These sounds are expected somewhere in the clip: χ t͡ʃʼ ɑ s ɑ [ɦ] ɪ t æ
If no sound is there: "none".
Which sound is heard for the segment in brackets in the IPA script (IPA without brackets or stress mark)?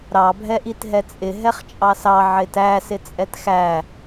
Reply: ʕ